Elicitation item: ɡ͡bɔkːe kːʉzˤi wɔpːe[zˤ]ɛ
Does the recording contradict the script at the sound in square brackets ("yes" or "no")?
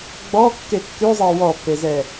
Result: yes